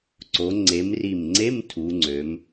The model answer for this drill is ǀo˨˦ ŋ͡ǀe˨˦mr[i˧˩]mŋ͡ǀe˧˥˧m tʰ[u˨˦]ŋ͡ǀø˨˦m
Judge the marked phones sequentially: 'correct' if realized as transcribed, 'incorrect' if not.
correct, correct

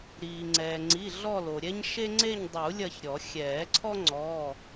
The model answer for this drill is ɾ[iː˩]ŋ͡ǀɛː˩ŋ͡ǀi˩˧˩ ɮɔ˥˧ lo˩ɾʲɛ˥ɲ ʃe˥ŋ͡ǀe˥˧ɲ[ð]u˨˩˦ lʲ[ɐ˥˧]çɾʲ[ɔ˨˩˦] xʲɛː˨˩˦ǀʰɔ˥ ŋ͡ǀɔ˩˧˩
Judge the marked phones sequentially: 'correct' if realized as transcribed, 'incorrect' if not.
correct, incorrect: dˤ, correct, correct

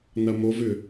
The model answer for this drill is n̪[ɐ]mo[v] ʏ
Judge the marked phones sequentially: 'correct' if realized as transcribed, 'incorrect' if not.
correct, correct

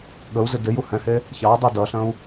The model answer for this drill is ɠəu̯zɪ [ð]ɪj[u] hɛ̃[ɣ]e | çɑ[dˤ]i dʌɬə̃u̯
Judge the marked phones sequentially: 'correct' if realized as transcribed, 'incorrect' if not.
incorrect: d, correct, incorrect: h, correct

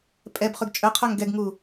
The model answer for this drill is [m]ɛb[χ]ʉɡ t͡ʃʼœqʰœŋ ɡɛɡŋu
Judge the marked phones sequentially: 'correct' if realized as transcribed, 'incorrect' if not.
incorrect: pʼ, correct

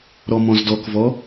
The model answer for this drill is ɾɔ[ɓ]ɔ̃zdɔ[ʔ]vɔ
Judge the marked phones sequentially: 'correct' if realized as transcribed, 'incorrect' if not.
incorrect: m, incorrect: k

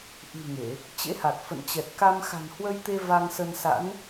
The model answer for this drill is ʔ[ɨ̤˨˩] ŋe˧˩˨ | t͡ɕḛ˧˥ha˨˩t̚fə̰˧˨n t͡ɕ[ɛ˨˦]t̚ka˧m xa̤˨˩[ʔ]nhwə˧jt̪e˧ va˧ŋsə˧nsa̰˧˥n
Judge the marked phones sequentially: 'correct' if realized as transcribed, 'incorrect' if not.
correct, incorrect: ɛ˨˩, incorrect: none

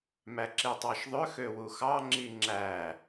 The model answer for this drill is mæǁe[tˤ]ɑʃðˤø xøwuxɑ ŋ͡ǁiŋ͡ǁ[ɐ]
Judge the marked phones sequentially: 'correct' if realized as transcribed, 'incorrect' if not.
correct, incorrect: æ

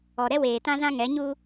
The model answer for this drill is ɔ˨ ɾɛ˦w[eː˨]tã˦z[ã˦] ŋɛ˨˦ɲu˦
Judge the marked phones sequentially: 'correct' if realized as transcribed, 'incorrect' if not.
correct, correct

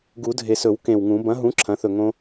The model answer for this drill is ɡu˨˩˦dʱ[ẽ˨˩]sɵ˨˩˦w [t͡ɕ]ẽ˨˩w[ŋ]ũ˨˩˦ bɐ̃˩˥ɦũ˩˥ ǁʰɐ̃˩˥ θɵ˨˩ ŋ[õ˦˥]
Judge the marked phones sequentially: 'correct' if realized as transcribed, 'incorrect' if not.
incorrect: e˨˩, incorrect: k, correct, correct

